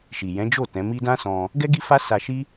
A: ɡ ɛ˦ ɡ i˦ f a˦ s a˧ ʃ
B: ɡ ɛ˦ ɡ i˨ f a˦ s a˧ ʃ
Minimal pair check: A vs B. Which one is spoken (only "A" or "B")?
A